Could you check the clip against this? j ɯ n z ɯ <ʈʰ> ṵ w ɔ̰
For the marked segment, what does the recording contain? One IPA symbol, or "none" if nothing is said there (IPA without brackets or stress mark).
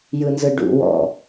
ɖ